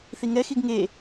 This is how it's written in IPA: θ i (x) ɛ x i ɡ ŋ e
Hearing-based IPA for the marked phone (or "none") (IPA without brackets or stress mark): ŋ